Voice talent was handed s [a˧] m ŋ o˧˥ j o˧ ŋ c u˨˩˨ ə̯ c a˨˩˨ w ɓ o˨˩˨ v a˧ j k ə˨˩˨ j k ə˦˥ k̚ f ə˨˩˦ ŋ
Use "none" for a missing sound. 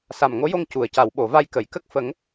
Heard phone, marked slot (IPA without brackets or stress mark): a˨˩